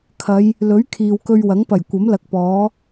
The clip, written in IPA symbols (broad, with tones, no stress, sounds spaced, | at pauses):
kʰ ɐ˨˧ j | l ɵ˨˥ ɥ kʰ iː˨ w k ɵ˧ ɥ w ɐ˨˥ ŋ p ɐ˨˩ j kʷ ɐ˨˥ m l ɐ˨ k̚ p ɔː˨˥